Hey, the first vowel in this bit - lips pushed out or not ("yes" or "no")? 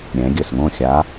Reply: no